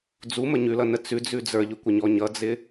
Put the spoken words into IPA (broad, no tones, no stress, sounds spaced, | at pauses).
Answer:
d͡z u m ə ɲ ʉ l ʌ n ə t͡s ʉ d͡z ʉ d͡z ə˞ ʎ ʉ kʷ ə ɲ ɔ ɲ ʌ d͡z ɪ